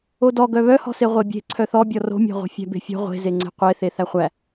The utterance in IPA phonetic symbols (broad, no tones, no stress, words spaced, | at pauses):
odɔɡœ βœhɔ̤se ʁʷebʲe̤ ǀʰœθɔbʲɔ ro̤mʲæ̤ʁʷe̤ fʲæ̤be̤fʲɔ̤ ʁʷe̤zeŋ͡ǀe̤ qʷeθe θæχʷæ